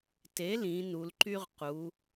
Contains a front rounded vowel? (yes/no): yes